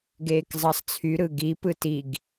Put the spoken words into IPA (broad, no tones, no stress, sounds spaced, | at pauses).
ɡ eː k zˤ ɑ sˤ t͡sʰ y ɾ ɯ ɡ i p ɯ t i ɡ